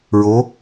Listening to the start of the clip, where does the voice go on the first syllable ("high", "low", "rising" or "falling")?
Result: rising